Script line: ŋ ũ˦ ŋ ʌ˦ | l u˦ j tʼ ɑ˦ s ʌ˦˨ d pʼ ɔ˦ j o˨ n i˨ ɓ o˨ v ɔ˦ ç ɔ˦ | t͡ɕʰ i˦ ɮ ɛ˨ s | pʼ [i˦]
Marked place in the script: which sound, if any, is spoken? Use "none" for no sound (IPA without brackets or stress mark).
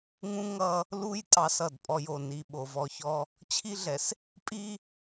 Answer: i˦